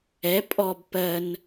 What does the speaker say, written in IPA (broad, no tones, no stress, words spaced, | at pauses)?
ɛ pʼɔb pɜn